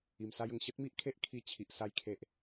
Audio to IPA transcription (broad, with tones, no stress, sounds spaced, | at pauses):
i˨˩ m s a˦ j ə˨˩ ŋ ɕ ə˦ t̚ m i˦ ʔ kʰ e˦ ʔ kʰ i˧ t͡ɕʰ i˨ ʔ s a˧ j kʰ e˨ ʔ